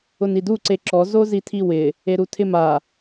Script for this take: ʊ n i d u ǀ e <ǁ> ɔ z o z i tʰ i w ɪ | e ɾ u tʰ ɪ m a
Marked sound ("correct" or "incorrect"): correct